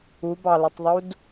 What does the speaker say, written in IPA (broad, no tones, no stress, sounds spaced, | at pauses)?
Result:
u b ɑ l ʊ tˤ ðˤ u d